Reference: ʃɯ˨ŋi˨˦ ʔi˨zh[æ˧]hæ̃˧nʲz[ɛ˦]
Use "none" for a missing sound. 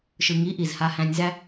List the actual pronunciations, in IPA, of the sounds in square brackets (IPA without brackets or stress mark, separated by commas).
a˧, æ˦